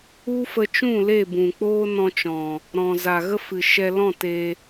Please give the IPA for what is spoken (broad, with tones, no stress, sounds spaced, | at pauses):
u˦ f ə˧ t͡ʃ ũ˦˨ l e˦˨ b ũ˨ k͡p oː˦ n ɔ̃˧ t͡ʃ ɔ̃˨ | ɾ ɔ̃˨ z a˨ ɣ ə˦ f ɨ˨ ʃ ɛ˧ l ɔ̃˦˨ t e˧